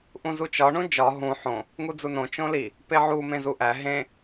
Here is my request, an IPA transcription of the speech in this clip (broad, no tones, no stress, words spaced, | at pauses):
ʔũzut͡ʃɒ ɳũd͡ʒɒ ɦũ ħõ | ŋud͡zunõ t͡ʃõli | peʕu mẽzuʔæ ɦẽ